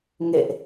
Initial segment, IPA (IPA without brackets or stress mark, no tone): ŋ